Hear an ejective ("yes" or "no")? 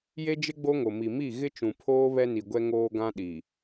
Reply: no